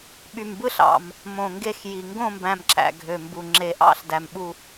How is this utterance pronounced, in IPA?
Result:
ɓ y˨˩ m b ɯ˦˨ ɬ ɑ̰˨˩ m | m õ˨˩ ŋ ɡ e˦˨ x j i˨˩ ŋ ɡ õ˦˨ m b æ̃˨˩ m ǁ æ̰˨˩ ɡʱ ø˨˩ m b u˨˩ ŋ͡ǁ e˨˩ ʔ ɑ̰˦˨ ɬ d æ˨˩ m ɓ u˦˨

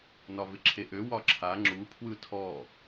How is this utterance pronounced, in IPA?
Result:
n ɒ v ɪ ǁʰ e ʔ ø w ɒ ǁʰ a ŋ͡ǁ u pʰ w ɯ tʰ ɔ

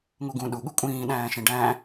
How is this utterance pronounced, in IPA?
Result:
ŋ u ɡ ũ ɗ u ɠ u kʷʼ ĩː ɗ æ̃ː ʃ ĩ ɖ æ̃

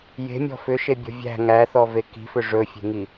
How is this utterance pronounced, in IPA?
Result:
j e̤ mʲ ɔ̤ f ʏ ʃ e bʲ ɔ̤ vʲ æ̤ ŋ æ θ ɔ v e k i̤ f ʏ ʐ ɵ fʲ e̤ ŋ i

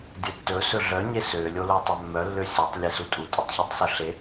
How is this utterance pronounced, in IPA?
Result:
dʲ ɵ tː ɵ s ɵ ɮ œ ɲ e s ø lʲ o l o tˤ œ mː œ lː ø sʲ e tˤ lʲ e s u tʼ u tʼ ɵ tˤ ç o tˤ s ɵ ɬ e

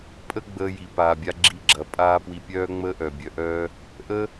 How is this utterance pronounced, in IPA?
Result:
pʼ ə˦ ɡ͡b əː˧ j i˨ p aː˨ bʲ a˧ ɡ͡ǁ i˧ ɡ͡ǁ ɐ˨ pʼ aː˦ p w i˧ pʲ œː˦ ŋ͡m əː˦ ʔ œ˨ bʲ œ˧ ʔ œː˦ | ʔ ə˦

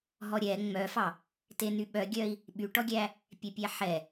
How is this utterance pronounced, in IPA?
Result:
ɦ ɔ ɾʲ ɛ ŋ͡m œ f ɑ | t e n y ɓ œ ɡʲ œ i̯ | ɓ y ʈ ɔ ɡʲ æ | pʲ ɛ pʲ æ ħ ɛ

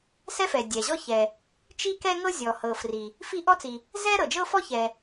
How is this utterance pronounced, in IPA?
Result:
s ɛ˥ f ɛ˩ dʲ ɛ˩ ʑ ɔ˥ ç ɛ˩ | t͡ʃ i˥ k ɛ˥ ŋ ɤ˥ zʲ ɔ˩ h ɤ˩ f r i˩ | f i˥ ʔ ɔ˥ t͡s i˩ | z ɛ˥ ɾ ɤ˩ d͡ʒ ɤ˥ f ɔ˥ ç ɛ˩

